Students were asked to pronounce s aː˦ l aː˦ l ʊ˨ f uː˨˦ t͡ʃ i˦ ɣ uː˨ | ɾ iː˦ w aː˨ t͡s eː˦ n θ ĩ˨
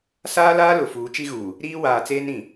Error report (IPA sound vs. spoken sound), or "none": θ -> ɾ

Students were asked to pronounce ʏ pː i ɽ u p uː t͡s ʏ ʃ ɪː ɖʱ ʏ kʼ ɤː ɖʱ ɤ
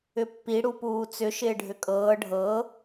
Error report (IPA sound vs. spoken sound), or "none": none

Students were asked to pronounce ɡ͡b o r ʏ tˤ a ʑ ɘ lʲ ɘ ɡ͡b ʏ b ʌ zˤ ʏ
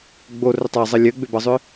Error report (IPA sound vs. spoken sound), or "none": ʑ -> zˤ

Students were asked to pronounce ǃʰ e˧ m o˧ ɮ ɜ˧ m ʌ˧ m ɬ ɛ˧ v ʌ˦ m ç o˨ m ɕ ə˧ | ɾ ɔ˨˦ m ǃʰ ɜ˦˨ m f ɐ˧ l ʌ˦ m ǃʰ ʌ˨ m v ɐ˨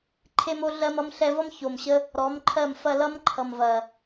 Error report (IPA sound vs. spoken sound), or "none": none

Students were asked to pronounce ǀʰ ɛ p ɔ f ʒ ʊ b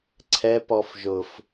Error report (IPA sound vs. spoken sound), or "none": b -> f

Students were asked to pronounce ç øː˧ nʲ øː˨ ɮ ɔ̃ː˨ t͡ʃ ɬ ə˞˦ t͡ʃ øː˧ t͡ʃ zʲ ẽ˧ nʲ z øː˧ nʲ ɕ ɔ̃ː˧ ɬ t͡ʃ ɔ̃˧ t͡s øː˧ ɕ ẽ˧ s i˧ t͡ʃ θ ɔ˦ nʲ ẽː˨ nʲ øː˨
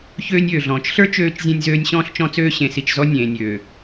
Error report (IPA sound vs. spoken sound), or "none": θ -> z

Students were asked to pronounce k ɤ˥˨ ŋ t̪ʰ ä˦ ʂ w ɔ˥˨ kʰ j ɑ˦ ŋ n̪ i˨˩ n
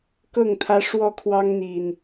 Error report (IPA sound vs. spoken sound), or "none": j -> w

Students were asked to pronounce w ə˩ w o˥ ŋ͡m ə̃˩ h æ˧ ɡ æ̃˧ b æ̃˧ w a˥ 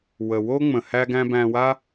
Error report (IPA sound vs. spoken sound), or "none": none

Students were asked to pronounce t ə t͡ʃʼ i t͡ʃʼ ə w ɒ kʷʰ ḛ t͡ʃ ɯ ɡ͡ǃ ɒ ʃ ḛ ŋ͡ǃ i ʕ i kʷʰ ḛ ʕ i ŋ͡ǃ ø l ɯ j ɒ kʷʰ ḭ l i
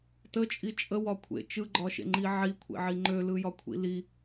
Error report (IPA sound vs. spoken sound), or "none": none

